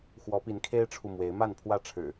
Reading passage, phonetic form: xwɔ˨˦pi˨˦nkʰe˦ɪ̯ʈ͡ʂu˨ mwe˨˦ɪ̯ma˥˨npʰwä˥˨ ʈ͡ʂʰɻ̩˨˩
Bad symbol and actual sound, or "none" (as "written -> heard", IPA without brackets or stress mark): ʈ͡ʂ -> ʈ͡ʂʰ